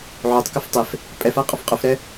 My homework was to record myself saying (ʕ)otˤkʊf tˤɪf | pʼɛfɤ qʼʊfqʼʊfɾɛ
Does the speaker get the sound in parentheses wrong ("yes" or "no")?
no